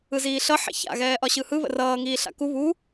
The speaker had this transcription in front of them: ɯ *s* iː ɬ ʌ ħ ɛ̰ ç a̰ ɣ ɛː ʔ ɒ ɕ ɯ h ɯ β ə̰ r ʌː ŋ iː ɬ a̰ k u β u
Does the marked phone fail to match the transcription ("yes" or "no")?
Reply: yes